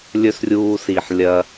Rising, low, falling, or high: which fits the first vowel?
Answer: high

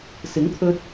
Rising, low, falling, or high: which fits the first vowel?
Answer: rising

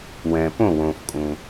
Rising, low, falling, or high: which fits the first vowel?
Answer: low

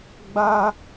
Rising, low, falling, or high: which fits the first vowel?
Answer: high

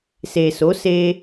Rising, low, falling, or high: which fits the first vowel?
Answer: low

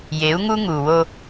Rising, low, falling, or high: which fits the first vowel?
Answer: rising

